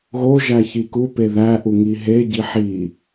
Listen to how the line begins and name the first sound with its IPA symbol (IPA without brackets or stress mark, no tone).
ɣ